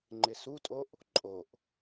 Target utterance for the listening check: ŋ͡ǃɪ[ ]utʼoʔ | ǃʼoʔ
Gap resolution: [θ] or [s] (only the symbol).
s